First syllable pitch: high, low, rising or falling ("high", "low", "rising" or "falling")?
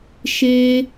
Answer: high